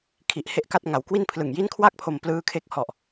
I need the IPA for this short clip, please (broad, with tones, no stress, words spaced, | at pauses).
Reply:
kʰi˨˩ʔhe˦˥ʔka˦˥t̚ ŋa˩˦wkwi˥˩npʰlɯ˨˩ŋ ji˦˥nkʰwa˥˩k̚ pʰo˧mplɯː˦˥ kʰe˦˥k̚hɔ˨˩ʔ